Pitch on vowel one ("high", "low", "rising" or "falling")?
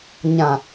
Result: low